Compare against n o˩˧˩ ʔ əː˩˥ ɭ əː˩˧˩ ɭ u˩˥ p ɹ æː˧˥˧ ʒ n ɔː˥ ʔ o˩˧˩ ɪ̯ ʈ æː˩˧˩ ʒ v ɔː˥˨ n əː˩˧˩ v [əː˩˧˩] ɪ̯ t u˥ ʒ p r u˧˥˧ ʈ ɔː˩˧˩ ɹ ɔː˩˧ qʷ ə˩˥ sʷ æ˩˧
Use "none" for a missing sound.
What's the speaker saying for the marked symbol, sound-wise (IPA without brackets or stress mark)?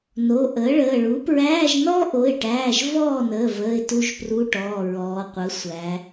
əː˩˧˩